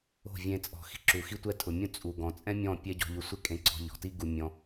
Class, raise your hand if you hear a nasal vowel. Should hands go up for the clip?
yes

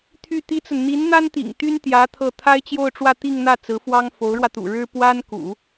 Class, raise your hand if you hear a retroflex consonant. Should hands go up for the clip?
yes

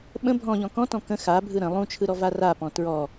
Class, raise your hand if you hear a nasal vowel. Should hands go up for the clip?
yes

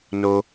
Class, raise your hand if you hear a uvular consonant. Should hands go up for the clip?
no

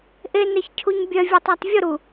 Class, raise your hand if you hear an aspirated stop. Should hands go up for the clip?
yes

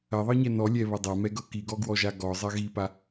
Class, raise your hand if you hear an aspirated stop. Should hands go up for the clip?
no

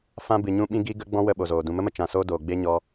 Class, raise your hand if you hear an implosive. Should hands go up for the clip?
yes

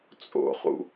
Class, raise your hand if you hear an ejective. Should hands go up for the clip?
yes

